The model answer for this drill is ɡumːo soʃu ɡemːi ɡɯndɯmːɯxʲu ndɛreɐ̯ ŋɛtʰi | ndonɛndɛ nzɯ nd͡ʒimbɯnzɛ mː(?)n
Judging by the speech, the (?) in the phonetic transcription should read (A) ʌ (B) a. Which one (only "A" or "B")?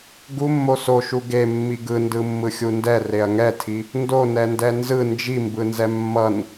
A